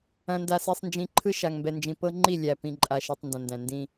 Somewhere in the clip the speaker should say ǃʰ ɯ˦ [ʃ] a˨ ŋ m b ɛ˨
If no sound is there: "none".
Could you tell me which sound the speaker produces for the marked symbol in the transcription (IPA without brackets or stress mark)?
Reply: ʃ